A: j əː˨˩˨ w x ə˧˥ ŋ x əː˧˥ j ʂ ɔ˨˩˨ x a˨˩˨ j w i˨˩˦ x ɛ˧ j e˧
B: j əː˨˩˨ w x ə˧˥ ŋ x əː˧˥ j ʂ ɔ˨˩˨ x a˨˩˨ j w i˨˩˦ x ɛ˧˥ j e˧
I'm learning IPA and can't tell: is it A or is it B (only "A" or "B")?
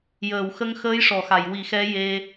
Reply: B